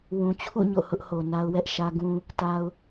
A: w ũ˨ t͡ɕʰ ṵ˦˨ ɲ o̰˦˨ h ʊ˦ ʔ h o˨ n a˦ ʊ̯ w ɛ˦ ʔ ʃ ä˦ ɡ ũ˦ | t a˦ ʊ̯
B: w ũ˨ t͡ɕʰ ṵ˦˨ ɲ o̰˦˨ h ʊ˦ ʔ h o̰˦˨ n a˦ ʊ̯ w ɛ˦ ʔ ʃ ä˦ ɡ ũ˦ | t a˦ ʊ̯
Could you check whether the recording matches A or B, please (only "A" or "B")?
A